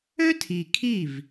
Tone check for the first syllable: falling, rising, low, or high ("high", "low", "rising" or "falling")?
high